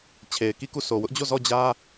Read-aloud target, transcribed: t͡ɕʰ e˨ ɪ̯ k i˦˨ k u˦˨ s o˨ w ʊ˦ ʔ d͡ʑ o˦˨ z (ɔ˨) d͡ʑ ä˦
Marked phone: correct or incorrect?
incorrect